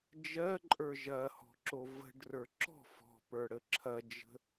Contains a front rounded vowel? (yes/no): no